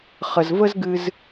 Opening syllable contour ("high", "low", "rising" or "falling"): low